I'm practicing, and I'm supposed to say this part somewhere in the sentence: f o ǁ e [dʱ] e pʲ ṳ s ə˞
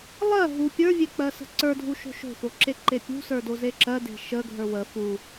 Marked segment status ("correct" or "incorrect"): incorrect